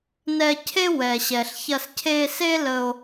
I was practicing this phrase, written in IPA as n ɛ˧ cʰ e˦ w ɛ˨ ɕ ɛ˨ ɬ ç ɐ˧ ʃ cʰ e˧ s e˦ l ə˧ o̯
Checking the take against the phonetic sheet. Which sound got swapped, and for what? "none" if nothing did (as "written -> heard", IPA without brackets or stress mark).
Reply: ʃ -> s